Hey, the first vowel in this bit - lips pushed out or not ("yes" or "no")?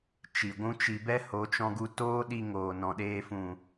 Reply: no